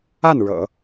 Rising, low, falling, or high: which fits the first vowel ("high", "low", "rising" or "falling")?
falling